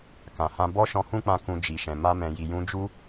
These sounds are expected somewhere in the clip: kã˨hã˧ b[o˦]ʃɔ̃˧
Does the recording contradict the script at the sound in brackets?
yes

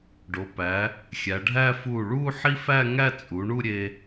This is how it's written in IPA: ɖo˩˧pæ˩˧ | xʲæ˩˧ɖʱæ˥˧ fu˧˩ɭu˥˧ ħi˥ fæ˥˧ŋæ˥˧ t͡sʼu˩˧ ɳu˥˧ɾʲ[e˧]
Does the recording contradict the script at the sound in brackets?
no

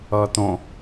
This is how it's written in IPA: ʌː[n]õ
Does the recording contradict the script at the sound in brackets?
yes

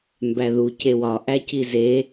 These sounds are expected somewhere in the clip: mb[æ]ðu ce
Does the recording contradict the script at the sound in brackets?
no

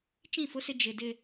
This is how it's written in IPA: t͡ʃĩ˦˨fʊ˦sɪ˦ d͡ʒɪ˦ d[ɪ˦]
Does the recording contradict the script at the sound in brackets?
no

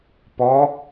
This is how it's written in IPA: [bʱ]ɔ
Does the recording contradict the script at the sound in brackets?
yes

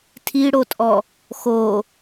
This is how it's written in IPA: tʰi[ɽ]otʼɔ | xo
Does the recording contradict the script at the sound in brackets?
no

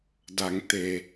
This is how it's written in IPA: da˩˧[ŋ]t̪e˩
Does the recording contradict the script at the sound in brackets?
no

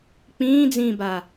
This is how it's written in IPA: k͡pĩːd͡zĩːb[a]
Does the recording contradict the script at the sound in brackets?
no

